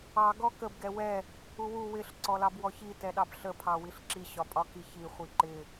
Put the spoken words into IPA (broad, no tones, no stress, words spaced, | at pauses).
ɑ ɡɔkəb ɡɛwɛ | uwu wɪɬ ǀɔlɑbwɔçi tɛɗɑbɬə pʰɑwiɬǁi ɕɒpʼɒkiçi χʷiǃɪ